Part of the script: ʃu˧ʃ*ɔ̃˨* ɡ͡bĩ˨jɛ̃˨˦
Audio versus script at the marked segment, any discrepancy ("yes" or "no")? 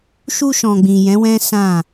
no